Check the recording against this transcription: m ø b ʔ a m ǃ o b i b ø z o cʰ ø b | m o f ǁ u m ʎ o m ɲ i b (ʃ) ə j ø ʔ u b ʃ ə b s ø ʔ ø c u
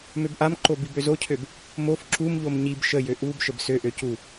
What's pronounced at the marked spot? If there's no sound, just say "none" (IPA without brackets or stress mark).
ʃ